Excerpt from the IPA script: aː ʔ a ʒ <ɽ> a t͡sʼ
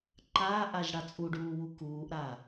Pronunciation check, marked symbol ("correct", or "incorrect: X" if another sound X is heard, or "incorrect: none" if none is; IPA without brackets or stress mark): correct